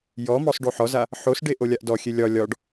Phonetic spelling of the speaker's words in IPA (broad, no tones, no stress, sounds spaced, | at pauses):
j ɔ m ɔ sˤ ɖ o ħ ɔ z a | ħ o s ɖ e ʔ o lʲ a ʔ d ɔ xʲ e lʲ ɒ lʲ ɒ ɖ